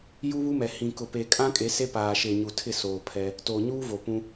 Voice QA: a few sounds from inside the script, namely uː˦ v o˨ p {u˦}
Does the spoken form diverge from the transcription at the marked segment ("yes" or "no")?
yes